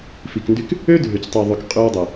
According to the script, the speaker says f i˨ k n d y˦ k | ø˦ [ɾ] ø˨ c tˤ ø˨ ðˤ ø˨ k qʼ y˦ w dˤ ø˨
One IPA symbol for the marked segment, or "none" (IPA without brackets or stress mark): dʱ